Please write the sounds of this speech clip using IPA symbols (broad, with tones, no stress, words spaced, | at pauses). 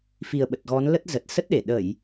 fi˨˩ə̯ɓə˨˩t̚ɣɔ˨˦nlə˦˥t̚ zə˨˩t̚sə˦˥t̚ɗe˧˩ ɗə˧˩˨j